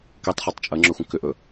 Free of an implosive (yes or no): yes